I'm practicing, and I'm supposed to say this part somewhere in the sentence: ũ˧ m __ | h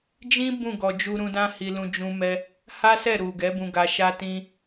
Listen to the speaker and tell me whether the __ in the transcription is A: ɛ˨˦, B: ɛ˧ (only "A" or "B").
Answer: B